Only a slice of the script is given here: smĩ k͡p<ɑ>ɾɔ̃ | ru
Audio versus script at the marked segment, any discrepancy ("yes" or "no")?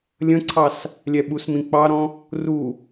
no